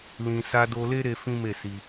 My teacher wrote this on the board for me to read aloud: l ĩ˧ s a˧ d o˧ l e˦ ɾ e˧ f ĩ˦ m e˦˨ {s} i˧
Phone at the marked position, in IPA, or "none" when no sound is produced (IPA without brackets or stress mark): s